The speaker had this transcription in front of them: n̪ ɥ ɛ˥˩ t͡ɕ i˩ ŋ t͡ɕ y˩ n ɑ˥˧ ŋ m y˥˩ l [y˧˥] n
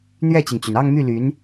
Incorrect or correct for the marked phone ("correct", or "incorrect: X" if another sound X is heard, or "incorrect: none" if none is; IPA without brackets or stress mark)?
correct